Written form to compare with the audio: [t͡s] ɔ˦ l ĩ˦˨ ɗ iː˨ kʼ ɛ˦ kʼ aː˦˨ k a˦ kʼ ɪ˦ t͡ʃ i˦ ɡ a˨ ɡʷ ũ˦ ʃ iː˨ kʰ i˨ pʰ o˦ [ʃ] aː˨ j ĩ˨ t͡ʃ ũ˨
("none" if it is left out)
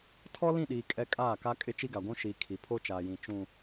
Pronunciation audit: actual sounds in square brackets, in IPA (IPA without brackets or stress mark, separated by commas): tʰ, t͡ʃ